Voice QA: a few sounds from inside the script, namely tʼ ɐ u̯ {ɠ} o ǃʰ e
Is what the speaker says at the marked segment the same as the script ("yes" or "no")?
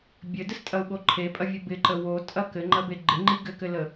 yes